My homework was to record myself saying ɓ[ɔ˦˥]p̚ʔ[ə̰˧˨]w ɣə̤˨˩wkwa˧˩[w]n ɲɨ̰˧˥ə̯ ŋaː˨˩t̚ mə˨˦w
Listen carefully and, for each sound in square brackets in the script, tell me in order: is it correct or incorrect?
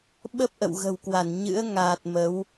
incorrect, correct, incorrect

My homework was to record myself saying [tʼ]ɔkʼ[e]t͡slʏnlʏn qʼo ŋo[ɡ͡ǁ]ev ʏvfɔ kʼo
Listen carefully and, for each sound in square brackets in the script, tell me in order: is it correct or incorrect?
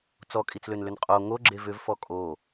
incorrect, incorrect, correct

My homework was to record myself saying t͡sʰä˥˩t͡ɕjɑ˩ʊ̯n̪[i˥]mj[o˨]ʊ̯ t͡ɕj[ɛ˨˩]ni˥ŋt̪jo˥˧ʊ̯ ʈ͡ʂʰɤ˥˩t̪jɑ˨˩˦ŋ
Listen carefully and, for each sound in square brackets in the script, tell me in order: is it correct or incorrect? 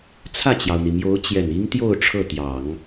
incorrect, incorrect, correct

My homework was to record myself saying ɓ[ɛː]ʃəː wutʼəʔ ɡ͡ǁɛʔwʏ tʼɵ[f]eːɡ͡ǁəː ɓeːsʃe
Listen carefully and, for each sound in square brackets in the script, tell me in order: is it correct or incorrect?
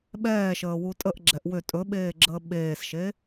correct, incorrect

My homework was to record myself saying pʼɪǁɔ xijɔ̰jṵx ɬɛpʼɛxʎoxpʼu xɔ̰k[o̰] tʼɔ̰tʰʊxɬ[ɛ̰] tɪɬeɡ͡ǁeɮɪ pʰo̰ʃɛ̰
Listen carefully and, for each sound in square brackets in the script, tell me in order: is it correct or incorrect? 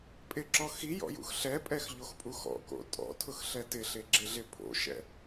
correct, incorrect

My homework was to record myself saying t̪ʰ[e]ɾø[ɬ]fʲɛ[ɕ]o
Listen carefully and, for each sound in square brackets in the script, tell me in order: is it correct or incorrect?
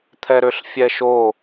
incorrect, correct, incorrect

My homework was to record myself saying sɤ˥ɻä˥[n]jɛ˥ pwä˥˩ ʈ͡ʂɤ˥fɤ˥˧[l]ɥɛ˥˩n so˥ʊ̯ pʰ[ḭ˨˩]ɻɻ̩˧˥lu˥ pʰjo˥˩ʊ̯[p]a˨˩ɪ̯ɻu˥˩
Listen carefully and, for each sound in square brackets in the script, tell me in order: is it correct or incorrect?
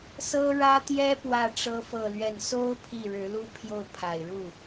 incorrect, correct, incorrect, incorrect

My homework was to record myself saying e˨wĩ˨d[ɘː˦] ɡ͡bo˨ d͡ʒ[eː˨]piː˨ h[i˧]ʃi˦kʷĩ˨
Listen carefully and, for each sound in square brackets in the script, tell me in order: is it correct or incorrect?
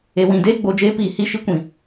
incorrect, incorrect, incorrect

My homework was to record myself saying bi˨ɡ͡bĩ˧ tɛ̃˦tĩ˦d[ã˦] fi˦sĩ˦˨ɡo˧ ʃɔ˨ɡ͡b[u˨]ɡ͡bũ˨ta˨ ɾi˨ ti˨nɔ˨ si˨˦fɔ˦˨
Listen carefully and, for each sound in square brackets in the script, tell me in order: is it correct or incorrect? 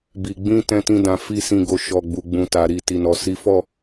incorrect, correct

